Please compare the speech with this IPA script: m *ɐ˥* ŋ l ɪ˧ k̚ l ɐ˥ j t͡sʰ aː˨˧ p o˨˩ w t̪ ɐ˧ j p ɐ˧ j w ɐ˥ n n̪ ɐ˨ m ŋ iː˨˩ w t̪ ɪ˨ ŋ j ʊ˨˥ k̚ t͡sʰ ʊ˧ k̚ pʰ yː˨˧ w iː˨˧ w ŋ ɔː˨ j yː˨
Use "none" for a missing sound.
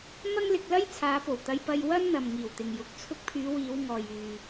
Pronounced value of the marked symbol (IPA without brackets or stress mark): ɐ˥